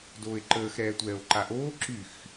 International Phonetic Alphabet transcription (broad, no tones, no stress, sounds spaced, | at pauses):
d oː e̯ ǃ əː x ɾ ɛː tʷ ɛː o̯ ǃ a ʔ oː ǁ y x